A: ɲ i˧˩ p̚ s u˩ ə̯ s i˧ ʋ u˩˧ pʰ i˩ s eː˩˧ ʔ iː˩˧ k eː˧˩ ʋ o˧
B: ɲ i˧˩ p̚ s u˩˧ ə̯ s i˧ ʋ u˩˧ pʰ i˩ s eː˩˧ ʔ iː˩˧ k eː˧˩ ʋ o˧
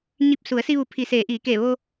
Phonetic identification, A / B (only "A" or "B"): B